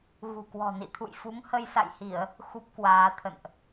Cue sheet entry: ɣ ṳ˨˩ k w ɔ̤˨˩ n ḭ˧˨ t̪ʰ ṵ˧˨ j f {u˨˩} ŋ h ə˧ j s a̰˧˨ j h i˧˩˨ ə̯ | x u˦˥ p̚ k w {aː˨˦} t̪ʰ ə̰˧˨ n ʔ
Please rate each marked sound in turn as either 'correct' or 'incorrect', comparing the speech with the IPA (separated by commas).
incorrect, correct